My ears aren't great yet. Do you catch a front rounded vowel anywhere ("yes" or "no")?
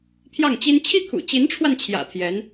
no